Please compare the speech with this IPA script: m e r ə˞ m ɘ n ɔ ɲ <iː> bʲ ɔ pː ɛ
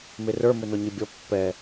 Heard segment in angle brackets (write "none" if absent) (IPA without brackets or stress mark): i